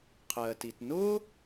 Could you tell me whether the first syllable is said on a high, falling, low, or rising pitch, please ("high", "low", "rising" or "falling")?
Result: low